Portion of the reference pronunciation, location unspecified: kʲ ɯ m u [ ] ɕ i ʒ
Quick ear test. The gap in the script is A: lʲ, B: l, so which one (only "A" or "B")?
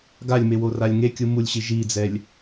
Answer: A